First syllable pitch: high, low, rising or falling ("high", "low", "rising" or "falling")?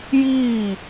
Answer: falling